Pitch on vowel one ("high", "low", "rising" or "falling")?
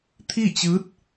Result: falling